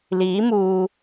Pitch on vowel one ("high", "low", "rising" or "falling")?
rising